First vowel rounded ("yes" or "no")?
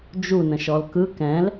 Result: yes